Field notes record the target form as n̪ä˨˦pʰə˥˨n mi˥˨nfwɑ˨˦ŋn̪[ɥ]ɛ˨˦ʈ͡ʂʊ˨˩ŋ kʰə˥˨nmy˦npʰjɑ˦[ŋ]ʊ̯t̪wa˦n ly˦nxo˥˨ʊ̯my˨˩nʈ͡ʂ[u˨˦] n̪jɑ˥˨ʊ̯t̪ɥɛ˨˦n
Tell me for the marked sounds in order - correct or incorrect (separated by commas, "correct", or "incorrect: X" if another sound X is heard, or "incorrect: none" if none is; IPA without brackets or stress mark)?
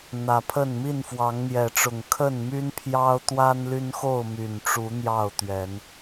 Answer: incorrect: j, incorrect: none, correct